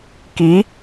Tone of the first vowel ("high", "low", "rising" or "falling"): rising